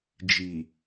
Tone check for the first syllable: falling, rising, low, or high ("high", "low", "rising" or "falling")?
low